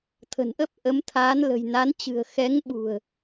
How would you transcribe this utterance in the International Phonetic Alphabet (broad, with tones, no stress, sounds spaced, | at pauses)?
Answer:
t̪ʰ ə̤˨˩ n ʔ ə˦˥ p̚ ʔ ə˨˦ m t̪ʰ aː˨˦ n l ə̤˨˩ j n a˨˦ n t͡ɕ ɨ̤˨˩ ə̯ x ɛ˨˦ ŋ ɓ ṳ˨˩ ə̯